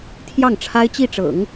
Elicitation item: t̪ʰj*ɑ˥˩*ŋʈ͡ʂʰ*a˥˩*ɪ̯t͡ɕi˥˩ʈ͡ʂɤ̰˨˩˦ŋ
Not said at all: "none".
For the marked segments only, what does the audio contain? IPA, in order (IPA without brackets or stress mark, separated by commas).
ɑ˥˩, a˥